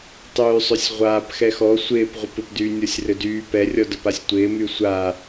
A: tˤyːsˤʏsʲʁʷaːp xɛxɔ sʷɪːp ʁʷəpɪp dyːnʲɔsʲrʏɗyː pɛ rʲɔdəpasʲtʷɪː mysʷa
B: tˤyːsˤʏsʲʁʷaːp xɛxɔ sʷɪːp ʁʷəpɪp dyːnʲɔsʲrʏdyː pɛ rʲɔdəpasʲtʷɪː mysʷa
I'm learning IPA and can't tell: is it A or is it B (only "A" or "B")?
B